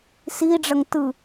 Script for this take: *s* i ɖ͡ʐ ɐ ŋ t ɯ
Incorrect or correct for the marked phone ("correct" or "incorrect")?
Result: correct